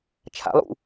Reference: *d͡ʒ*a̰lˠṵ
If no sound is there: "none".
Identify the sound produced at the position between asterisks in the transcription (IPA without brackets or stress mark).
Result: t͡ʃʰ